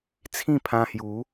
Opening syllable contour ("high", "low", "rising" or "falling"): falling